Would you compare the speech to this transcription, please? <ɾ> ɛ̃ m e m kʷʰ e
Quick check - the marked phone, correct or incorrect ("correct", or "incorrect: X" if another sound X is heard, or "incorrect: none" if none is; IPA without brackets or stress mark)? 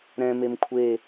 correct